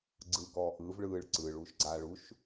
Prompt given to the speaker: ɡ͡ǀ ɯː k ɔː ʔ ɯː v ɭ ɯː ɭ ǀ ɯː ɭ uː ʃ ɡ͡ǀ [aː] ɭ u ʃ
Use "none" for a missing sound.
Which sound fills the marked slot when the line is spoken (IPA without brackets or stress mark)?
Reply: aː